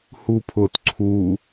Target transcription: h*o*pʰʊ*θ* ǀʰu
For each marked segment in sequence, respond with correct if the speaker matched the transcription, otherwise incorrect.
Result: incorrect, incorrect

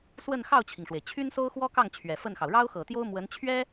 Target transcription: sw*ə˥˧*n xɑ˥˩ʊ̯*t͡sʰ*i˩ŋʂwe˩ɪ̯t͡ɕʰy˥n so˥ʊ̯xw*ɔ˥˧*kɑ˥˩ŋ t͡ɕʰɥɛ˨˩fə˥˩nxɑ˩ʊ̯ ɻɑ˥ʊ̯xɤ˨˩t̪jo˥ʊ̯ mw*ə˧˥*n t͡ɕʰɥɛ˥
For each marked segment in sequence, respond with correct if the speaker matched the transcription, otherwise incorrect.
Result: correct, incorrect, incorrect, correct

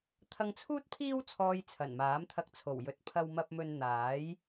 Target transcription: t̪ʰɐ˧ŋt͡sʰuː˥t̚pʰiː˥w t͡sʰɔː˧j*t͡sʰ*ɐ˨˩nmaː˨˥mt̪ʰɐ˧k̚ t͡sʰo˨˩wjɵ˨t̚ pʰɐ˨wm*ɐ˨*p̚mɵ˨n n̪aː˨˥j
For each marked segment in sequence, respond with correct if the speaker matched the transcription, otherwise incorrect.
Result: correct, correct

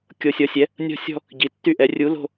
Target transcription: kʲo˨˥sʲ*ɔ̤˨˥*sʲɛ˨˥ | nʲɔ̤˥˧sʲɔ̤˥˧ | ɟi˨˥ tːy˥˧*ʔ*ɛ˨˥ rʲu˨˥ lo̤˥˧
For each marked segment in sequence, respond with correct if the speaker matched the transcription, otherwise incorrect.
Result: incorrect, correct

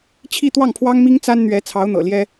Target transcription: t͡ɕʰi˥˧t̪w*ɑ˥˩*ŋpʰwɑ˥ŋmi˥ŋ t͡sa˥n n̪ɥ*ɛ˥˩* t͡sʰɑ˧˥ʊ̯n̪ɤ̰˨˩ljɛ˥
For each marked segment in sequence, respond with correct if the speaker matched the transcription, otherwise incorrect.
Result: correct, incorrect

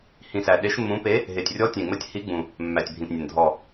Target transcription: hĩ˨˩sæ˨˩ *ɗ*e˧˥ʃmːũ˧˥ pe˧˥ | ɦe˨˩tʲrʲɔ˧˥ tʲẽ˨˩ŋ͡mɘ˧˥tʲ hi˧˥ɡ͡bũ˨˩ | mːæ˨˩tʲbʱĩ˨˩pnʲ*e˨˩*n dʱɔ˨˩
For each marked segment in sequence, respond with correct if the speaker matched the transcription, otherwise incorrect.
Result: correct, incorrect

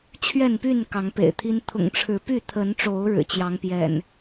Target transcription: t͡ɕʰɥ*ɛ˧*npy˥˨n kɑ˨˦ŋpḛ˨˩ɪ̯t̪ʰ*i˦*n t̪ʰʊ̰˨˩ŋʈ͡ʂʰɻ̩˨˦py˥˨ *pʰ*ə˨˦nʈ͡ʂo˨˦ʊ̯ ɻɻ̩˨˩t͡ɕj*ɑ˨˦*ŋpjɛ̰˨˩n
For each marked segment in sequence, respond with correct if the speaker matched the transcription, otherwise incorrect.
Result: incorrect, correct, incorrect, correct

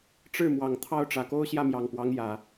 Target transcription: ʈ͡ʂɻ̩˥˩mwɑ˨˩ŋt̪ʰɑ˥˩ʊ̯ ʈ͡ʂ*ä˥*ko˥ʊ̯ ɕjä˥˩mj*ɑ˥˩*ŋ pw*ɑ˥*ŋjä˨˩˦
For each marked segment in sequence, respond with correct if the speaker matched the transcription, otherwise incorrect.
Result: incorrect, incorrect, incorrect

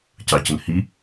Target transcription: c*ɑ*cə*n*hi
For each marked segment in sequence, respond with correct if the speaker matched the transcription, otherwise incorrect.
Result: correct, correct

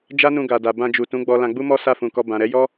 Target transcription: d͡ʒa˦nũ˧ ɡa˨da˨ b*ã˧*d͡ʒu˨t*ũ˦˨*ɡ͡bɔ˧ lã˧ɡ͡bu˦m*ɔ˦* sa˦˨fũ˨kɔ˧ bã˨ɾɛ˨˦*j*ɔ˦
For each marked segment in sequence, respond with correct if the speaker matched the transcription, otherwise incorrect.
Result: correct, incorrect, correct, correct

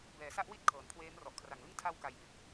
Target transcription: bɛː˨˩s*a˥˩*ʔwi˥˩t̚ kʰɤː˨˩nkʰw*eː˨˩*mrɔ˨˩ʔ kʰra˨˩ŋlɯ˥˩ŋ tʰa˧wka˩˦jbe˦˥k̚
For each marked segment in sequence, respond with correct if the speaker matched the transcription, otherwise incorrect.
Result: correct, incorrect

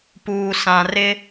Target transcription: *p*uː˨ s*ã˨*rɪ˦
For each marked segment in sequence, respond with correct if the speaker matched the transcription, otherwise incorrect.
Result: correct, correct

